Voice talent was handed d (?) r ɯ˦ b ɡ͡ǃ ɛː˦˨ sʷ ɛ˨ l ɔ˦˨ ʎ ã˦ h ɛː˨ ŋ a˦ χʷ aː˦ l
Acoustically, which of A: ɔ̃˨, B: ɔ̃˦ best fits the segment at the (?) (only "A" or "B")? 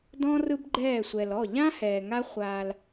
B